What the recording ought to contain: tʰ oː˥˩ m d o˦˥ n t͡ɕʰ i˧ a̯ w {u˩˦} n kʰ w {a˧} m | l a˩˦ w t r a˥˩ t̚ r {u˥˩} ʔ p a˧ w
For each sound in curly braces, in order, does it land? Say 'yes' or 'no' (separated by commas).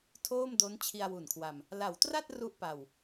no, yes, yes